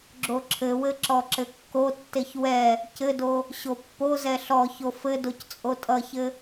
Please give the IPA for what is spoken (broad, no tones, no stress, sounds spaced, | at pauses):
ɡ͡ǁ o ǁʰ ɘ w ɘ ǁ ɔ ǁ ɘ kː o tː e ç w ɛ | c ɘ d o | ɕ o pː o z ɛ ɬ ɔ ç o f ɘ d o c t͡sʼ o tʼ ʌ ç ɘ